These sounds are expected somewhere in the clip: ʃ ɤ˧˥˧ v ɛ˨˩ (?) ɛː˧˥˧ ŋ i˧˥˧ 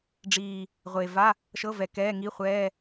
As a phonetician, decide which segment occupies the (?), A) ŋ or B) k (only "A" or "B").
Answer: B